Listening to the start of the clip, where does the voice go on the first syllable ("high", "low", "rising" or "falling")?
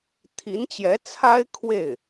rising